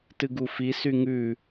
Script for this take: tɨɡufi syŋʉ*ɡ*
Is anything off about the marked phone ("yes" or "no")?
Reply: yes